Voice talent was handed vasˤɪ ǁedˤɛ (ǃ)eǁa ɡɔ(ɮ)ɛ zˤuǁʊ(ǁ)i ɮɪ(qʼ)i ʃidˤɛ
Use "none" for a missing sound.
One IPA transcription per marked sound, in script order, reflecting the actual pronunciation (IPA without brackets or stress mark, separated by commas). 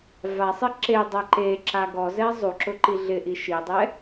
ǃ, z, ǃ, ʔ